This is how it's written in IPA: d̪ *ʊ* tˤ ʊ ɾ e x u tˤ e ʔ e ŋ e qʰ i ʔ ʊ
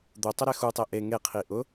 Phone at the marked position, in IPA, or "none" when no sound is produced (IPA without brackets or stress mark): ʊ